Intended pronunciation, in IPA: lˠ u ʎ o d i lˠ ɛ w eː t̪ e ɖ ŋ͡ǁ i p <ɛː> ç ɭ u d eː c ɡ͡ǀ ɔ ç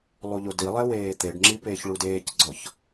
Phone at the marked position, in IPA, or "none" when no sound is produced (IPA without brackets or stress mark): eː